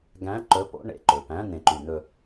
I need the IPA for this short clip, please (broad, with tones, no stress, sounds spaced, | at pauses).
ɡ æ̃˧˥˧ ǃ ɵ˧˥˧ p o̰˧˥˧ ɳ ḛ˨˩ ǃ ɵ˨˩ p æ̃˧˥˧ n̪ ẽ˨˩ ǃ y˧˩˧ n̪ ɵ˧